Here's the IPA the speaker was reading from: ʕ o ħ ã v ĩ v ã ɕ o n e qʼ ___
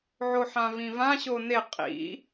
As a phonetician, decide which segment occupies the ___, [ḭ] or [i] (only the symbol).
ḭ